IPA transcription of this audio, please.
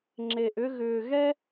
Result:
ŋ͡ǁ e˨ ʔ ʏ˧ ɣ ʏː˨ ɣ ɛ˦

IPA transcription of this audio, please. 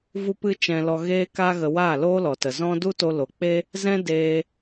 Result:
v u˦ p ɨ˦ t͡ʃ ɛ̃˧ l ɔ˧ ɣ eː˦ k a˦ ɣ ə˧ w aː˦˨ l oː˦ l ɔ˨ t ə˨ z ɔ̃˦ d u˦ t o˧ l o˨ k͡p e˦ | z ɛ̃˦ d eː˦

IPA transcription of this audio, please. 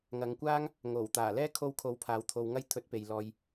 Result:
ŋ ɐ˨ ŋ kʷ aː˥ ŋ | ŋ o˨˩ w t̪ aː˨˩ l ɛː˥ kʰ o˧ w kʰ o˨˧ w pʰ aː˨ w t̪ʰ o˨ w ŋ ɐ˧ j t̪ʰ ɵ˨˥ t̚ p e˨ j l ɔː˧ j

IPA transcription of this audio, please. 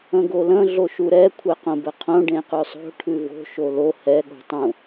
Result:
ə̃ ɡ o l ə̃ ɮ o ʃ u ɾ ɛ kʷʰ ɛ q õ b ə qʰ õ ɖ ẽ q ʉ sˤ o̤ ʈʰ ʉ v o̤ ʃ o l o h ɛ ɠ o̤ tˤ ũ

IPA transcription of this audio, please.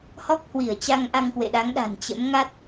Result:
h ɔ˦˥ k̚ h w i˧˩ ə̯ t͡ɕ a˧ ŋ ʔ a˧ ŋ k w ḛ˧˨ ɗ a˨˦ ŋ ɗ a̤˨˩ n t͡ɕ ə̰˧˥ m ŋ a˦˥ t̚

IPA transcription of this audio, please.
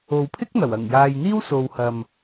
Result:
o˨ w pʰ ɪ˥ k̚ n̪ ɐ˨˩ w ɐ˨˩ ŋ j aː˨ j n̪ iː˥ w s o˨ w h ɐ˨ m

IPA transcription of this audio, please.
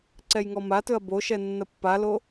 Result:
ǀ ɛ j ŋ ɔ m a t ɵ ɐ̯ b o ʃ ɛ nː ɐ pː a l o

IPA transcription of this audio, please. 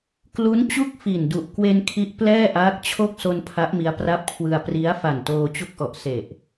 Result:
k l u˦˥ n t͡ɕ u˥˩ k̚ f i˨˩ n d u˨˩ ʔ k w e˧ n kʰ i˦˥ ʔ p l ɛː˥˩ ʔ aː˦˥ k̚ t͡ɕʰ o˥˩ k̚ s o˧ n pʰ a˦˥ ʔ m i˦˥ a̯ p r a˦˥ p̚ kʰ w ɯ˧ a̯ p r i˦˥ a̯ f a˨˩ n t oː˧ t͡ɕ u˦˥ k̚ ʔ ɔ˨˩ ʔ s e˨˩ ʔ

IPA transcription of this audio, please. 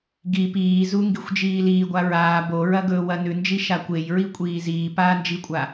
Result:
ɡ i p iː z u ŋ ɡ i xʷ d͡ʒ iː l iː ɡʷ a ɹ aː b o ɹ ɐ ɡ ɵː w ɐ n ʉ n d͡ʒ i ʃ a kʷ e j ɹ i kʷʼ iː z iː p aː n d͡ʒ i kʷʼ a

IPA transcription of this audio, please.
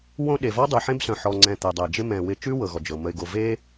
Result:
w õ˦ ɗ e˩ v ɔ˥ dˤ ʉ˩ ħ ẽ˦ b s œ̃˩ ħ ɔ˨ ŋ͡ǀ ɛ̃˨ t̪ ɛ˩ dˤ ɛ˩ d͡ʒ ɪ˥ m ɛ̃˨ w ɪ˦ t͡ʃ ʉ˥ w ɤ˩ ɣ ɔ˩ d͡ʒ ɤ˩ m ə˨ ɪ̯ ɡ o˨ v e˥

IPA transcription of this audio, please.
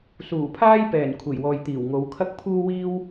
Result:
s uː˨˩ pʰ aː˥ j p ɛː˨˩ n kʷʰ e˨˩ j w ɔː˨ j t̪ iː˨˩ w ŋ o˨˧ w kʰ ɐ˥ k̚ pʰ uː˥ w iː˥ w

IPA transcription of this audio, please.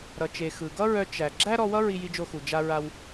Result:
ɾ ʌ˩ t͡ʃ e˩ x ɯ˩ ɡ ʌ˥ ɹ œ˧ t͡ʃ æ˩ ɡ͡ǁ æ˥ ɾ ɔ˧ w ʌ˥ ɹ i˧ j i˧ d͡ʒ o˧ x u˩ d͡ʒ a˧ ɹ a˧ w

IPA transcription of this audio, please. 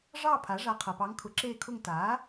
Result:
ʐ ɑ˦˨ pʰ a˩˥ ʐ a˧˥ qʰ ɤ˨ p ɑ˧˥ ŋ kʰ ʊ˩˥ ǁ eː˦˨ kʰ ʊ˦˨ ŋ t aː˩˥

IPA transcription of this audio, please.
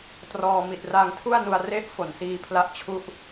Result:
t r ɔː˧ m i˨˩ t̚ r aː˧ ŋ tʰ u˥˩ a̯ n u˧ a̯ r e˥˩ ʔ f o˨˩ n s iː˧ pʰ l a˦˥ ʔ t͡ɕʰ u˦˥ ʔ

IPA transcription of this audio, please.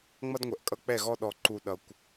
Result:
ŋ͡m ʌ˦ d ŋʷ ɛ˨ ʔ kʼ ʌ˦ k͡p ɛ˦˨ ɣ ɔ˦ ɗ ɔ˨ ǃ u˨ ɗ ʌ˨ kʷ

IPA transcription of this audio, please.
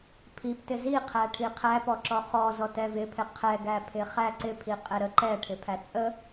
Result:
pʰ i p t ɪ z i qʰ æ ʈʰ i qʰ æ p ɔ ǁ ɔ χ ɔ z ɔ t ɛ v ɪ pʰ ɪ qʰ ɛ ɡ æ pʰ ɪ χ æ ǀ ɪ pʰ i qʼ ɛ ɾ ə ǃ ɛ ʈʰ ɪ pʰ æ t͡sʼ ə

